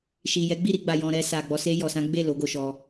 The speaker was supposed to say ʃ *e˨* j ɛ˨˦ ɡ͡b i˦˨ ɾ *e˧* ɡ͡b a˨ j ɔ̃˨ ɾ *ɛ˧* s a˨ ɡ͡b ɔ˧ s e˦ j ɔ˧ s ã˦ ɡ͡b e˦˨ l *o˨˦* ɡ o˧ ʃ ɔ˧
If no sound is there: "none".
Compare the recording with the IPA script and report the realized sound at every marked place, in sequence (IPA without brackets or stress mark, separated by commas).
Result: i˨, i˧, ɛ˧, o˨˦